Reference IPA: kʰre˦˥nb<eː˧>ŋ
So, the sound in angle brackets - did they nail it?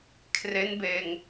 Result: yes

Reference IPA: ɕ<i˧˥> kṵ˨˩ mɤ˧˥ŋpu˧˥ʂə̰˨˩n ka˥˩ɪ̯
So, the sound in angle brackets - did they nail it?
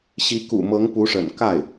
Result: yes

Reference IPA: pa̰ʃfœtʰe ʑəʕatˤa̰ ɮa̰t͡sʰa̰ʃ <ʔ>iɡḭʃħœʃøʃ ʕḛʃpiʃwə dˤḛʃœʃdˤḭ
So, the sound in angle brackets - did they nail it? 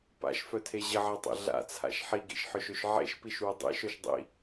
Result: no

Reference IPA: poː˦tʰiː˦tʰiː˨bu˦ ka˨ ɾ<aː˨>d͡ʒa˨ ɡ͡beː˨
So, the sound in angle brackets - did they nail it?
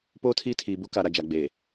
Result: no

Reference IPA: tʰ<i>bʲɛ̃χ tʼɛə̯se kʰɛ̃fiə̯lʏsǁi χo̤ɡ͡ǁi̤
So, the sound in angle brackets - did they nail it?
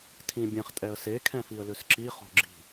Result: no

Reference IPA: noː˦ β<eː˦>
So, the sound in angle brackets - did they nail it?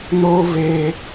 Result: yes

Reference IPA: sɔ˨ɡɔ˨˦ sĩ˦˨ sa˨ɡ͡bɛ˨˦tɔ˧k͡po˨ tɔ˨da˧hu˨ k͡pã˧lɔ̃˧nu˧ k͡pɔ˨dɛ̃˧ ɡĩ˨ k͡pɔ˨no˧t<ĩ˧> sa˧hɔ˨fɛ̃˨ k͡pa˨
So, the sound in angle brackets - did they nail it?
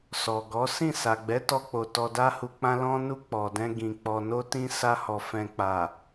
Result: yes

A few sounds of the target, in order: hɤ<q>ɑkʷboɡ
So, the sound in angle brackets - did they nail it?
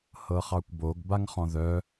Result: no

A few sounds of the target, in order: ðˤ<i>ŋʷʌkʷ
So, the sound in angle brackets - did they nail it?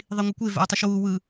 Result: yes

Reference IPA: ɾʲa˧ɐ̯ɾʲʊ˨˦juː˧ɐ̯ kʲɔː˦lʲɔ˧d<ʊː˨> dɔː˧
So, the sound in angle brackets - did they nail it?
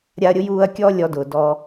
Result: yes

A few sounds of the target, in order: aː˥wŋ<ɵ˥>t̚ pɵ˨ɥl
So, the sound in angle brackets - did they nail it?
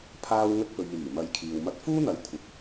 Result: yes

